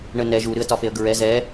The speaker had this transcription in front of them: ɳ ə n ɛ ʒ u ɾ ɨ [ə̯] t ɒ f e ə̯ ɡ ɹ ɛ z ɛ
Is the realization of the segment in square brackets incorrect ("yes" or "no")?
no